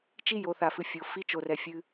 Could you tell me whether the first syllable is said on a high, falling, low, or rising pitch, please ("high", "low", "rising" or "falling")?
high